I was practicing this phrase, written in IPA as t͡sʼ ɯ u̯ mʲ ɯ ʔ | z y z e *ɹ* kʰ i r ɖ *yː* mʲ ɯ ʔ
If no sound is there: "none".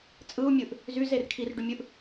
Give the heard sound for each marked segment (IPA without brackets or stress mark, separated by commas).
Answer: r, y